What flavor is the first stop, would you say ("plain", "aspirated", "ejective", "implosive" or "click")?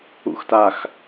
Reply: plain